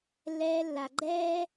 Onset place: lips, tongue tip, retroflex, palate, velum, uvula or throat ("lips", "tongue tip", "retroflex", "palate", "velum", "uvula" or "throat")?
tongue tip